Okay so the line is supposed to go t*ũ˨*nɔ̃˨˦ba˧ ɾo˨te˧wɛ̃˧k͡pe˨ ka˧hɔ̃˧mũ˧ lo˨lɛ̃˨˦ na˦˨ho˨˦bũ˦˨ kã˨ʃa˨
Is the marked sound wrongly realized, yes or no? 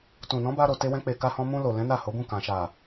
no